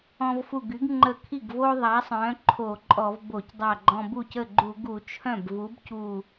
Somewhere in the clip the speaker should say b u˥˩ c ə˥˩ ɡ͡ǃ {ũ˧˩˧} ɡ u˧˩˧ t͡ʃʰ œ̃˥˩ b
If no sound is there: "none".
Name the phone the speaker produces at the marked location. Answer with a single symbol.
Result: u˧˩˧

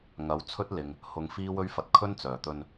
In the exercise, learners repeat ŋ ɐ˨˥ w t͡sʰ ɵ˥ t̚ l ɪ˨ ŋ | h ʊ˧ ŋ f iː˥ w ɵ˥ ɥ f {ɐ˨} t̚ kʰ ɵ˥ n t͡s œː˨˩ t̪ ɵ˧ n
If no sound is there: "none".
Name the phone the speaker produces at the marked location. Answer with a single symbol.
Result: ɐ˧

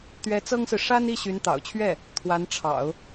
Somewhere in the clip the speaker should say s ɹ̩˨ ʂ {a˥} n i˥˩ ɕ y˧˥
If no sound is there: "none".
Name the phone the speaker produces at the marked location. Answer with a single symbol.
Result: a˥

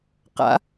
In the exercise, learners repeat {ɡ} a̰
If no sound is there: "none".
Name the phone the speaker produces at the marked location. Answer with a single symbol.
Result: q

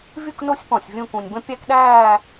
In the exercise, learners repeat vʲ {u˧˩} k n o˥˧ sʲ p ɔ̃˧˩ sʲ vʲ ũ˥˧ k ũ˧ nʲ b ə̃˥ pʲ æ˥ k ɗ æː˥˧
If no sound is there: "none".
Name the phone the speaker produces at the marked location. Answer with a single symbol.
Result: u˥˧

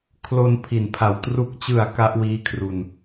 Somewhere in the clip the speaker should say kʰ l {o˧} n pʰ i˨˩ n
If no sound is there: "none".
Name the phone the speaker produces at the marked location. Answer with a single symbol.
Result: o˧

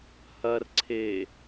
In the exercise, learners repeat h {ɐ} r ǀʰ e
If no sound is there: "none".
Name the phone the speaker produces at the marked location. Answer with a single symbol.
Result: ɐ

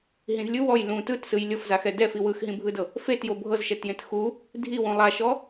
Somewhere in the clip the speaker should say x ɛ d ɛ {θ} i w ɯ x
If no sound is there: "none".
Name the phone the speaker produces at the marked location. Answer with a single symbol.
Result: f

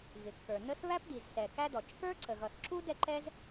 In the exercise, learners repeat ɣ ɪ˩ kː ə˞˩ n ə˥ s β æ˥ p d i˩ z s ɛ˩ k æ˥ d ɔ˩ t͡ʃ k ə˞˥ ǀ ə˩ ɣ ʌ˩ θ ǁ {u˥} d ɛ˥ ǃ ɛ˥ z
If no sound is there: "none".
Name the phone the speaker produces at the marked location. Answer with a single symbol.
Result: u˥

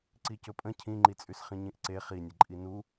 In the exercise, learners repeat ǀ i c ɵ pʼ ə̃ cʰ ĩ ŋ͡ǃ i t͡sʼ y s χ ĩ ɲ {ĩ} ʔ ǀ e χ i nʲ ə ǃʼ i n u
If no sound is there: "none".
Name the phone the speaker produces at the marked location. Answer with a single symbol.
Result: ĩ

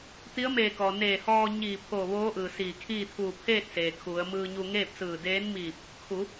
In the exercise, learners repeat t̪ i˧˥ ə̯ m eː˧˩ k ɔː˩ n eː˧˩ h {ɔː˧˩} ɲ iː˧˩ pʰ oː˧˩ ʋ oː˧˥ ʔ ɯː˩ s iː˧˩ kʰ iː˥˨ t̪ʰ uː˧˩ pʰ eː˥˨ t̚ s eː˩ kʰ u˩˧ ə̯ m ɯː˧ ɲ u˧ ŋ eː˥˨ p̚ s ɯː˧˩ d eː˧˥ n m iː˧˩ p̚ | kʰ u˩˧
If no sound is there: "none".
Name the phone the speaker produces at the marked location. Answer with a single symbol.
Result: ɔː˧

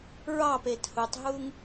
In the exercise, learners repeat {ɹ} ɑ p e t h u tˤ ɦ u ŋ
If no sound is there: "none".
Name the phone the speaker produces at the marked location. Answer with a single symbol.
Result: ɹ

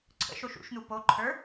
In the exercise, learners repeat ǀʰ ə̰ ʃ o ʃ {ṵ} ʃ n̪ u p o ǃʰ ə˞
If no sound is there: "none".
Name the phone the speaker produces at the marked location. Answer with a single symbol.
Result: ṵ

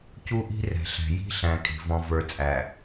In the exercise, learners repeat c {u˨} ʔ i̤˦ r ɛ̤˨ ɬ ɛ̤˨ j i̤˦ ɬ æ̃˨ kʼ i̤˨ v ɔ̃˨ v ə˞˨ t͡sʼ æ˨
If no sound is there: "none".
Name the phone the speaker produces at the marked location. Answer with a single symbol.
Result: u˦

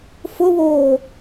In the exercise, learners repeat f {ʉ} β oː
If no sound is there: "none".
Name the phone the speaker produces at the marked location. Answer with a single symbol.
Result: ʊ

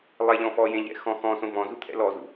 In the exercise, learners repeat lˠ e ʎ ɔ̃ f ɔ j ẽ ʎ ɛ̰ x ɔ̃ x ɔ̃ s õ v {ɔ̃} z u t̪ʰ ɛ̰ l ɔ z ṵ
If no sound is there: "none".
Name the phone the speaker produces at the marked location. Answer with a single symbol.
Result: ɔ̃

